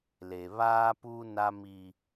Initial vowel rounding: unrounded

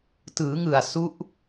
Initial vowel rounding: unrounded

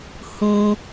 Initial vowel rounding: rounded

